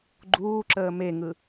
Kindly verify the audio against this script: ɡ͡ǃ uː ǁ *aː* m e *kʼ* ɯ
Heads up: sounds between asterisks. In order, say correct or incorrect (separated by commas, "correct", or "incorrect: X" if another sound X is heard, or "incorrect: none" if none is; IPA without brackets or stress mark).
incorrect: əː, incorrect: ŋ